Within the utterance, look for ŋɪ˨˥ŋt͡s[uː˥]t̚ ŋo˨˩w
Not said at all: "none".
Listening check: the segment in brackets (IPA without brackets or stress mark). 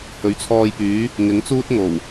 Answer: uː˥